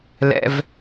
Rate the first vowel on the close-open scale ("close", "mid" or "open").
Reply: mid